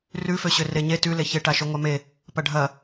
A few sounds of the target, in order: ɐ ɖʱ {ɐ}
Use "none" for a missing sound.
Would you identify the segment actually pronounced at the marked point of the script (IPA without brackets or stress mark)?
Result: ɐ